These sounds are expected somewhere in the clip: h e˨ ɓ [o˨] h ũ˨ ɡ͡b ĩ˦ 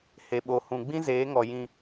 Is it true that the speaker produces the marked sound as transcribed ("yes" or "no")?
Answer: yes